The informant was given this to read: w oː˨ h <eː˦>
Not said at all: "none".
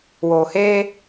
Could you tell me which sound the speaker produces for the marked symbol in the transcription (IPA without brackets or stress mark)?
eː˦